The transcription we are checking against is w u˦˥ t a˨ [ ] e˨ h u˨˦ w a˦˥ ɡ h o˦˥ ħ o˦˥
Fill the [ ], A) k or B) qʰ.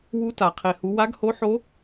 B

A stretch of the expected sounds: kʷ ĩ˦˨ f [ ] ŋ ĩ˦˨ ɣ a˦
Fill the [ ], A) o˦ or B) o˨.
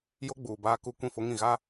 A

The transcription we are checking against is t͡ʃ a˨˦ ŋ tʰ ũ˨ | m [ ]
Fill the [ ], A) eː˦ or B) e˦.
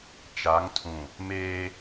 A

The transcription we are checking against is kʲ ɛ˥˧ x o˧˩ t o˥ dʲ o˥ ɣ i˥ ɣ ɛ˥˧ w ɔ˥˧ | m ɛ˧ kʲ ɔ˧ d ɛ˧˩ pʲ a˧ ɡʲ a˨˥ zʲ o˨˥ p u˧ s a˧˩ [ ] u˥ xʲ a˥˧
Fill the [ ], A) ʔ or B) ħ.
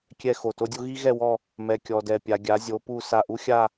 A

